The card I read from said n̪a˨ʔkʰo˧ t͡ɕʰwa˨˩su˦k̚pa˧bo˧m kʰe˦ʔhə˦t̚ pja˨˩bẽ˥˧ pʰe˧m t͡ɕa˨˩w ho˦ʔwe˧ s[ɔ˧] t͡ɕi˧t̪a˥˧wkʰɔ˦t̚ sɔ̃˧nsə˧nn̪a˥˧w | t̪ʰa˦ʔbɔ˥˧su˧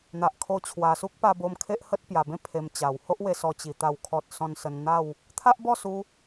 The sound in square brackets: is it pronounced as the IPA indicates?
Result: yes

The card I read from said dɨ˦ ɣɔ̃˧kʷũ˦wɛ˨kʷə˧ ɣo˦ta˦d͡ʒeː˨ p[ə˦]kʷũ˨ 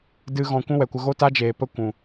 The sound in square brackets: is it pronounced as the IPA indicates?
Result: yes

